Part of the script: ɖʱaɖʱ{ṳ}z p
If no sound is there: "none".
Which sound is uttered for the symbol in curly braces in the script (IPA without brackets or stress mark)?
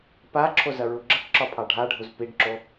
u